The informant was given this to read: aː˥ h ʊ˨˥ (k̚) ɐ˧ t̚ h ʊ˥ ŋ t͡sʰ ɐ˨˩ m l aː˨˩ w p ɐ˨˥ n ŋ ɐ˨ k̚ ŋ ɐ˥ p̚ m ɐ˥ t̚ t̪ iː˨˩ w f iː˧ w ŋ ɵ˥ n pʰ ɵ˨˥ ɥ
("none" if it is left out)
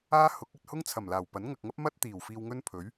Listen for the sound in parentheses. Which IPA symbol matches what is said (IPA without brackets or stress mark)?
k̚